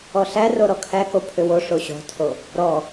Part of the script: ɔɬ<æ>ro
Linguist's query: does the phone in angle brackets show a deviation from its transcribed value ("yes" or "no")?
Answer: no